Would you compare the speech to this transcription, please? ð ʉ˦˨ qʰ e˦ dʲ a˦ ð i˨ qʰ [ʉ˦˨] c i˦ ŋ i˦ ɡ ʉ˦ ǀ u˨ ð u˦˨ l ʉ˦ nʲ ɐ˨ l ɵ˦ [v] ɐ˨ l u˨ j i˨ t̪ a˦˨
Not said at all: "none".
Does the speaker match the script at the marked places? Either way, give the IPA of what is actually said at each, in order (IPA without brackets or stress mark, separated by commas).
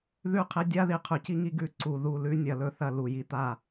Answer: ʉ˨, θ